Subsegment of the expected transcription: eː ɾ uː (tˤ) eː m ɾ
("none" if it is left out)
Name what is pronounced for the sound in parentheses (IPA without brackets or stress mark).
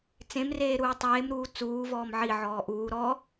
tˤ